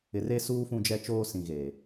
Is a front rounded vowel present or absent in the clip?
absent